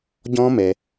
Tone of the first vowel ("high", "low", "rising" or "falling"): high